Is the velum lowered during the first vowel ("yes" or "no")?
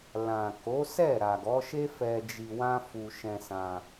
yes